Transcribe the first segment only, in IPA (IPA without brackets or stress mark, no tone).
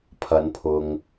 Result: pʰ